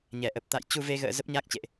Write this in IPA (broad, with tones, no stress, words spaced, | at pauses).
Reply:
ɲɛ˧˩ʔə˨˩p̚ t̪a̰˧˨j t͡ɕu˧ve˧ɣə̰ː˧˨ zə˦˥p̚ɲa˦˥k̚t͡ɕḛ˧˨ʔ